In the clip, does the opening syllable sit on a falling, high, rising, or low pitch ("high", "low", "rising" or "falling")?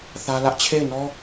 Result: high